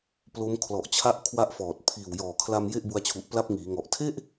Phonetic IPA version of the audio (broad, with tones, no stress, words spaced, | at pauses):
plo˦˥m kʰlɔ˨˩ʔt͡ɕʰa˦˥ʔ kʰwa˦˥ʔfɔː˨˩t̚ pʰiː˨˩wjɔː˨˩kʰla˧m je˥˩ʔbu˧a̯t͡ɕʰu˨˩ʔpla˦˥p̚ ŋiː˩˦ŋɔ˨˩ʔ tʰe˥˩ʔ